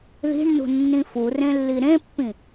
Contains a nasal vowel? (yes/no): yes